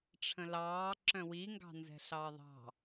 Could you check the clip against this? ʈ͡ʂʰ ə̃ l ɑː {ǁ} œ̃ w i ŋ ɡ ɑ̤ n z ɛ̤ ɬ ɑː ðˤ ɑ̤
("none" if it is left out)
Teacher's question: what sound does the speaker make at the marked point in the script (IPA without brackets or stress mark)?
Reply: ǁ